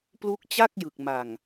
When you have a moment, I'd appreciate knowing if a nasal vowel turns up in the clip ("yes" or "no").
no